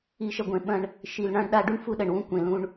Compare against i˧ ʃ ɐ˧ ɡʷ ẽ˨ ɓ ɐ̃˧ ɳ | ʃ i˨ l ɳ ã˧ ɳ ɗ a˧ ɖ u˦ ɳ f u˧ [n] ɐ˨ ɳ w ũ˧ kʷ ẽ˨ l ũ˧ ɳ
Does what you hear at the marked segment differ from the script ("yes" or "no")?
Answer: yes